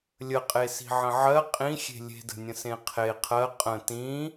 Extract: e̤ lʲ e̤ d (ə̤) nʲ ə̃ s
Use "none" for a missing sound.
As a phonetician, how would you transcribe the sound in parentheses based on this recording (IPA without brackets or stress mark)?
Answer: ə̤